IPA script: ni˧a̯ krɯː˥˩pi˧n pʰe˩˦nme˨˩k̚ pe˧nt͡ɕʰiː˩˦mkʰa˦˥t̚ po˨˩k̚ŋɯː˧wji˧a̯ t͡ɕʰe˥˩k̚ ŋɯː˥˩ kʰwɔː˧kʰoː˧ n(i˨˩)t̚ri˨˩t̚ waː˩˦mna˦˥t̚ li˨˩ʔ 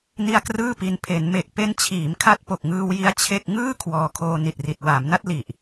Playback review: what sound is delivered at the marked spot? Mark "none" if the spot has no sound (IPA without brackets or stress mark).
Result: i˨˩